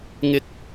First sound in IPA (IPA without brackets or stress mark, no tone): ŋ